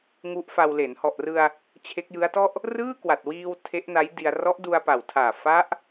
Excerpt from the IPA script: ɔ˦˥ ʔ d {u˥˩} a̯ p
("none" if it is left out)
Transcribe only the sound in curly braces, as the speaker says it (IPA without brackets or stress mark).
u˧